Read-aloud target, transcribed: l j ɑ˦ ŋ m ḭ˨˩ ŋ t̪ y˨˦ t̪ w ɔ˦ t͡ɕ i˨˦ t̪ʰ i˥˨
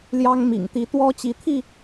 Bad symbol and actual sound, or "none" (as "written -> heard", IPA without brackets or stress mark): y˨˦ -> i˨˦